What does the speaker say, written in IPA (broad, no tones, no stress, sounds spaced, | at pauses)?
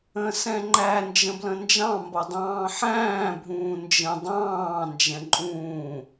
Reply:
ə̃ s ɛ̃ ŋ͡ǃ æ n d͡ʒ ə̃ b l ə̃ n d͡ʒ ɑ̃ m b ʌ dˤ ɑ̃ː ħ æ̃ː bʱ ũː n d͡ʒ ə̃ dˤ ɑ̃ː n d͡ʒ ɛ̃ ǃʼ ũː